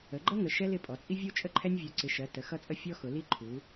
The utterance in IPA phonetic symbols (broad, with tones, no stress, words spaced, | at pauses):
ə˩˧ɡ͡ǃʌ˦ŋə˩˧ ʃɛ˦lɪ˩˧pʼɔ˩˧ t͡sʼi˦vʲu˦t͡ʃʼə˦ǃʰɛ˦nʲ vʲu˩˧ǀɪ˩˧ʃɜ˩˧ tə˩˧xʌ˦t͡sʼə˦ fʲɔ˦ xʊ˩˧li˦ǃʰu˩˧